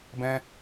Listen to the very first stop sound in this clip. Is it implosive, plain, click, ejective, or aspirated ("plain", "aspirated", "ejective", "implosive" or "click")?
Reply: plain